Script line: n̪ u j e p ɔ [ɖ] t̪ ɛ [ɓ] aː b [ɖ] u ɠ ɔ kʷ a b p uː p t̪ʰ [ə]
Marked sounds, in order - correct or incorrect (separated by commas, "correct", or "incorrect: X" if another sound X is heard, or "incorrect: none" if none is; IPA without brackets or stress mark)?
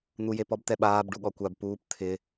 incorrect: b, correct, correct, incorrect: ɪ